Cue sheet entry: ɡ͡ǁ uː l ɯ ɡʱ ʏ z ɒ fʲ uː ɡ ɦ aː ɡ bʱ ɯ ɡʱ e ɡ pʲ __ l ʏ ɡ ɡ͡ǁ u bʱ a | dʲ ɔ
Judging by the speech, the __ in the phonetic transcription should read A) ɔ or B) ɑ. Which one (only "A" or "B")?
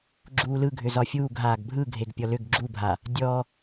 A